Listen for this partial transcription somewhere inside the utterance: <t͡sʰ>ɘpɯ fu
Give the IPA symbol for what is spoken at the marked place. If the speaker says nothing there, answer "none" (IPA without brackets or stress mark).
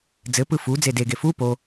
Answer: d͡z